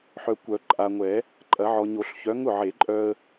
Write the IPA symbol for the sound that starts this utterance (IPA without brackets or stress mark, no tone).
ħ